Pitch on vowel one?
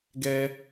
high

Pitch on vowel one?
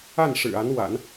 falling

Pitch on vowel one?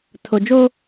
low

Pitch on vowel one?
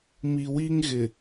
low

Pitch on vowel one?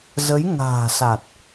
rising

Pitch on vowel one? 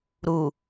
low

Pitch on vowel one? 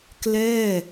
falling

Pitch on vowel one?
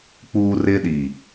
high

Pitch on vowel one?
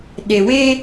low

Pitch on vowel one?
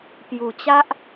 low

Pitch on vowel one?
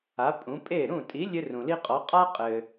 rising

